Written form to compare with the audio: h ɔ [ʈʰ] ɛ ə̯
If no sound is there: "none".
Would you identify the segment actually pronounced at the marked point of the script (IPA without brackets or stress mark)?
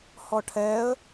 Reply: ʈʰ